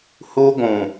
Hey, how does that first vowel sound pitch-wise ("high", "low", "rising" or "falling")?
high